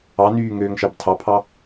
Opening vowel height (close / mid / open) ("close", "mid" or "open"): open